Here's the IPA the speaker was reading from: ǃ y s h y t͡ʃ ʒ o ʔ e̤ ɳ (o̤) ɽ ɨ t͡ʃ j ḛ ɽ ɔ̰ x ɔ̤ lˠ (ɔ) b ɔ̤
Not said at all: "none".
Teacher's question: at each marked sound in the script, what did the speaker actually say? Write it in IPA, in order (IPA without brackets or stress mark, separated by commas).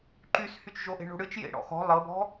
o̤, ɤ